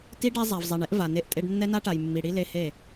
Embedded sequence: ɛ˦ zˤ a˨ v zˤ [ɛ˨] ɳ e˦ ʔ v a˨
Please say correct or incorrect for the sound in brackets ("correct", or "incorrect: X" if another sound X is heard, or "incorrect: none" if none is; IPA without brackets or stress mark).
correct